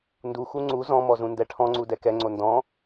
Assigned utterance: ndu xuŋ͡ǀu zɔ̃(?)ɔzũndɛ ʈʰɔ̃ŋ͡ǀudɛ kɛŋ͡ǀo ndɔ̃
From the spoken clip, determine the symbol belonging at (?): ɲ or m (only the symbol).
m